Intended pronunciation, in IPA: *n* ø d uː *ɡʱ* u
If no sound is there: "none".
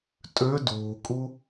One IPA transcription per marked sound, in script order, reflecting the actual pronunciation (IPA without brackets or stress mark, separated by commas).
tʼ, kʼ